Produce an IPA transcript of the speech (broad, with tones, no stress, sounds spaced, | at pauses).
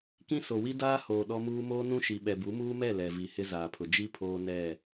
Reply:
k ĩ˦ s o˨ w i˦ d aː˦ h oː˨ ɗ ɔ˦ m uː˦ m oː˦ n ũ˦ ʃ i˨ ɓ ɛ˨ b u˨˦ m uː˦ m ɛ˦˨ l ɛ˨ v i˨ h ɪ˦ z aː˨ pʰ ʊ˨ d͡ʒ i˦ pʰ oː˦ n ɛ˦˨